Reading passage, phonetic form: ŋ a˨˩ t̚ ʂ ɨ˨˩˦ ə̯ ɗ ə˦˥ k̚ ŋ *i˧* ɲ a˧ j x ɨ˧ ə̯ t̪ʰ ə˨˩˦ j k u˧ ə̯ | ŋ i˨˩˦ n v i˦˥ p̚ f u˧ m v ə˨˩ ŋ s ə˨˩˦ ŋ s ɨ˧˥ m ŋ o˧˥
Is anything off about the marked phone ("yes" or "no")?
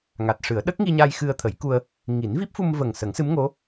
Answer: no